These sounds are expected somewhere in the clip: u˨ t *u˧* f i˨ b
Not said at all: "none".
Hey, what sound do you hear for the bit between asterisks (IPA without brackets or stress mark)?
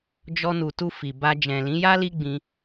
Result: u˧